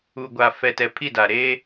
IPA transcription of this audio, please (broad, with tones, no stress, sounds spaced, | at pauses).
u˨ ɡʷ a˨ f ɛ˨ t ɛ˨ pʰ i˦˨ d a˨ ɾ eː˦